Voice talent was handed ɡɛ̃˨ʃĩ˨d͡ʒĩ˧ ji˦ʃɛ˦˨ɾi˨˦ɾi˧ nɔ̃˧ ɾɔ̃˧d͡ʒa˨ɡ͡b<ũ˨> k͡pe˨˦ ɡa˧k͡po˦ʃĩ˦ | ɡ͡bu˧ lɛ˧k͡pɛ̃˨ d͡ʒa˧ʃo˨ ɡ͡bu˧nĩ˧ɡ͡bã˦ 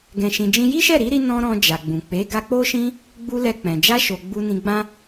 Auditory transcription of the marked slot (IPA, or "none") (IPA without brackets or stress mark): ũ˨